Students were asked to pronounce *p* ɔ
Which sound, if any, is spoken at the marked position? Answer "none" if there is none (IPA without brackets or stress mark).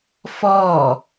f